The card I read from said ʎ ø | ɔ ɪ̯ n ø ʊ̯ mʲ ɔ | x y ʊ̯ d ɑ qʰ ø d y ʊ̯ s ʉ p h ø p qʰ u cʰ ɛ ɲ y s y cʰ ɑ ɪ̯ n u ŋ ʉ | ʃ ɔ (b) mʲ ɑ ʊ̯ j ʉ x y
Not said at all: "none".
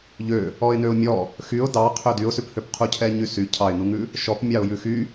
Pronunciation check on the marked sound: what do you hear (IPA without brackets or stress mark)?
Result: p